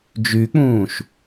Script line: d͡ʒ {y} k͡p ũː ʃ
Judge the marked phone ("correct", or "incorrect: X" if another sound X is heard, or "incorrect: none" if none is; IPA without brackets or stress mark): correct